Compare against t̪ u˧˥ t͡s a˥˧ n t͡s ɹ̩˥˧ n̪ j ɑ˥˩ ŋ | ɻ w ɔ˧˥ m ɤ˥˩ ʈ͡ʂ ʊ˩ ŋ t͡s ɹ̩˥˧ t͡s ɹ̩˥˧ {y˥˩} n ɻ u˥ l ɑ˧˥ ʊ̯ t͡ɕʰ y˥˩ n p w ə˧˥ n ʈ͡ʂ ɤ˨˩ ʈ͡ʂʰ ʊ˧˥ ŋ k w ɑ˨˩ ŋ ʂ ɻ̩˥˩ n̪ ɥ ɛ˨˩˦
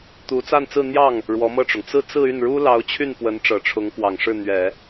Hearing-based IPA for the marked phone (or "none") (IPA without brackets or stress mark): y˥˩